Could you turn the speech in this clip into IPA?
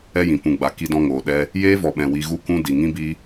ɛ˦ j ĩ˨ p ũ˨ ɡ͡b a˨ k i˧ d ɔ̃˧ ŋ oː˨ ɗ ɛ˧ | j eː˦ v ɔ˨ ɓ ɛ̃˨ w i˧ ɣ u˦ k ũ˦ d i˨ ŋ ĩ˦ b i˦

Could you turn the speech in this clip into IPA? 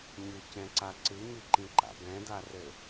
ɲ ɨ c ɛ̃ ǀ a ǀ ɨ ɲ ɨ ǃ ĩ ǃ a̰ b ɛ̃ d a r ɘ

